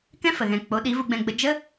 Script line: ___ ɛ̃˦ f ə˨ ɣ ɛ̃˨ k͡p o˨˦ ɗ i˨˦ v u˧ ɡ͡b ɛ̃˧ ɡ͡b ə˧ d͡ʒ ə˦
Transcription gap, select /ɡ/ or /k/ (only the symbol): k